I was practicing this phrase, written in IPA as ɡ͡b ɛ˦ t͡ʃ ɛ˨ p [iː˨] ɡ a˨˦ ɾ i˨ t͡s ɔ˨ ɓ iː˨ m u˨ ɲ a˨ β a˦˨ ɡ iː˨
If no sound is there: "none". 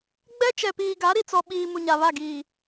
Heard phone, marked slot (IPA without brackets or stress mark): iː˨